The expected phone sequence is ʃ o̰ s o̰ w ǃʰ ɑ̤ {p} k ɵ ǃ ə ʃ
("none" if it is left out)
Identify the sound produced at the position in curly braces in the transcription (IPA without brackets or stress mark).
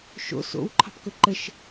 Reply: p